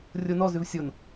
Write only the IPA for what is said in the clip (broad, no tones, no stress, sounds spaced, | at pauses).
rʲ o n ɔ z ʉ v sʲ o n